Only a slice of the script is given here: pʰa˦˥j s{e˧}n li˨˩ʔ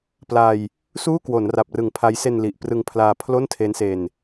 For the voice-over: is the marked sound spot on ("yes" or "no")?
yes